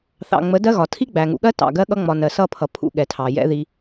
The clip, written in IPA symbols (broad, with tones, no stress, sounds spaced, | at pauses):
θ ɑ̰˨ ŋ͡m ə˨˦ d ɜ˦ ɣ ɒ˨ tʰ i˦ ɡ͡b æ˨ ŋ ṵ˨ ɠ ɜ˦ t ɑ̰˨ ɡ ɜ˦ ɠ ʌ˦ ŋ͡m ɒ˨ n ɜ˨ s ʌ˦˨ pʰ ʌ˨ pʰ ṵ˦ ɠ ɛ˨ tʰ ɑ˨ j ɛ̰˦ ð i˦